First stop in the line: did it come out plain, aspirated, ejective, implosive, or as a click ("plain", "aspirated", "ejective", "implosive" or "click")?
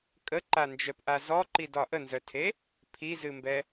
ejective